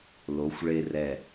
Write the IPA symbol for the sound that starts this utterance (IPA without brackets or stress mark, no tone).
l